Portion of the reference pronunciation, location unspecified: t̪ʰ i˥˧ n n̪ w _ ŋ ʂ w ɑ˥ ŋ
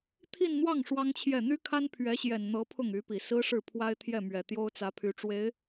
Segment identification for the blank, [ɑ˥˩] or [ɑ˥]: ɑ˥˩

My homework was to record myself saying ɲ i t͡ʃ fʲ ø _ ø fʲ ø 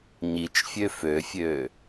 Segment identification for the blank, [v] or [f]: f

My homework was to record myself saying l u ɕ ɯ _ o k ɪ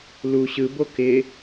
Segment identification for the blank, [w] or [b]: b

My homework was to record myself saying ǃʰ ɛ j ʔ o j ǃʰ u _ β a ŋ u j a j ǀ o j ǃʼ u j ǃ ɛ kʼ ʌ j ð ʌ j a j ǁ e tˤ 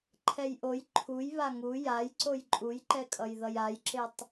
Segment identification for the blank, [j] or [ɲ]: j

